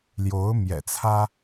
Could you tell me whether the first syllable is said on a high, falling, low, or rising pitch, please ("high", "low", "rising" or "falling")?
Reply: rising